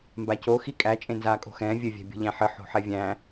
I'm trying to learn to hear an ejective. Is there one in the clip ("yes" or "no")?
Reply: yes